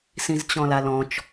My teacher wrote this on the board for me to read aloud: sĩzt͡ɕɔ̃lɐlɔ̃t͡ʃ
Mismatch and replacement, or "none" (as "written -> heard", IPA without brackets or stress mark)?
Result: ɐ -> a